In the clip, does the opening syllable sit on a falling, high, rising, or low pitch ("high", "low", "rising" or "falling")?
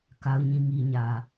low